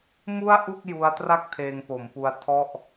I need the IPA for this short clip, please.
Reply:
m u˥˩ a̯ ʔ u˥˩ k̚ j u˦˥ a̯ t r a˥˩ k̚ tʰ eː˧ ŋ p o˩˦ m p u˧ a̯ tʰ ɔ˥˩ ʔ

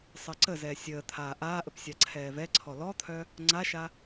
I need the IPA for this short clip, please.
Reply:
sˤ əː ǀ ə z ɛː sʲ əː t̪ʰ aː ʔ aː ʔ ə p sʲ a ǀʰ ɛː v ɛ ǀʰ ɔ l ɔ t̪ʰ œ | ŋ͡ǀ a ʃ a

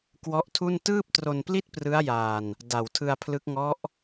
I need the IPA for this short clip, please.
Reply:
k w ɔ˦˥ ʔ tʰ u˥˩ n t ɯː˥˩ p̚ t r o˧ n p l i˥˩ t̚ p r ɯ˦˥ a̯ j a˧ n | d a˨˩ w tʰ ɯ˧ a̯ pʰ l ɯ˦˥ k̚ ŋ ɔ˦˥ ʔ

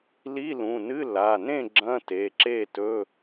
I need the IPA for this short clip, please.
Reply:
l i˧˥˧ l ũ˩˧˩ n ɨ˧˥˧ l a˩˧˩ n ẽ˥˨ ɡ͡ǁ ɐ̃˧˥˧ t e˩˧˩ ǁ e˥˨ t ɵ˧˥˧

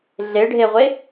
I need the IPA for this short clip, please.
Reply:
ɮ e ɖʱ e ʁʷ e

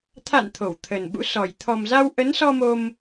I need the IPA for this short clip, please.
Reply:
t̪ʰ a̰˧˨ n t̪ʰ o˧˩ w t̪ʰ ə˨˩ n ɓ ṵ˧˥ s ɔ˨˩ j t̪ʰ ɔ˨˩ m z a˧ w ʔ ə˨˦ n s ɔ˧ m o˧ m

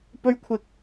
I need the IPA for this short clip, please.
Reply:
p ɵ˥ ɥ kʷʰ ɪ˧ k̚

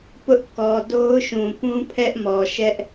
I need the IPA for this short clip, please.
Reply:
p ʊ˦ ʔ k ɔ˨ d o˦ ʊ̯ ʃ ũ˨ p ũ˦ pʰ ɛ˦ ʔ m ɔ˨ ʃ ɛ˦ ʔ

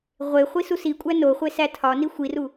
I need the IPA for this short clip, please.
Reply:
ʁʷ e χʷ i s u s i kʷʼ æ n o χʷ e s æ tʰ ɒ n i xʷ i r u

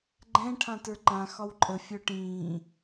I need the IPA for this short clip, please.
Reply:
ɡ͡ǃ ɛ̃ ʈʰ ã t ə˞ ǃ ã x ɒ w ǃʼ ə fʲ œ ʈ ĩː

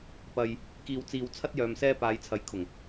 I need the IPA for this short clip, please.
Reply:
p ɐ˧ j | k iː˧ w t͡s iː˧ w t͡sʰ ɐ˥ t̚ j œː˨ m s ɛː˧ p aː˨˧ j t͡sʰ ɐ˨˥ j kʰ ʊ˨˩ ŋ

